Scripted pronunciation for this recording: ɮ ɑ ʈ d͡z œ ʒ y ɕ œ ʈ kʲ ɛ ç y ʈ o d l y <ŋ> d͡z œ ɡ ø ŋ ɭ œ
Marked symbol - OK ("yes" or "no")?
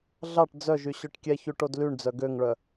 no